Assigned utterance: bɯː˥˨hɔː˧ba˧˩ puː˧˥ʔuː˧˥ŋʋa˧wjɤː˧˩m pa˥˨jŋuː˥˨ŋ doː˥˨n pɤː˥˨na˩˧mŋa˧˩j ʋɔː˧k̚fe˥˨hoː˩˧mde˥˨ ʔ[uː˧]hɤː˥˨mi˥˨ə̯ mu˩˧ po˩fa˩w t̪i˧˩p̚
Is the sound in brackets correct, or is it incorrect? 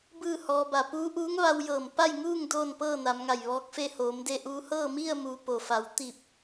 correct